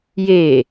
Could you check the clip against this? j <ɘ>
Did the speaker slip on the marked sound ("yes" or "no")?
yes